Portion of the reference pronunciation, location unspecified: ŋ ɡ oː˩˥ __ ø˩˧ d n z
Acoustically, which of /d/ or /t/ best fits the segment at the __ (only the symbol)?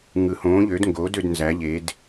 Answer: d